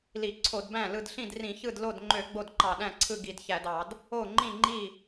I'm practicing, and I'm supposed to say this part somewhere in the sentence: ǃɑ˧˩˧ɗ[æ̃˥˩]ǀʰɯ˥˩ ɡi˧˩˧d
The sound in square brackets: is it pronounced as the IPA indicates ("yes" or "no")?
yes